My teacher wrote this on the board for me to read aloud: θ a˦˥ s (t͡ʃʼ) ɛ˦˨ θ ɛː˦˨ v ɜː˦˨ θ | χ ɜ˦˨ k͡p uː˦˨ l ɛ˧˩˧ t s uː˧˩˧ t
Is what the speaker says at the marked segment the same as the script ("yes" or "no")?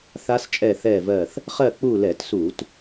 yes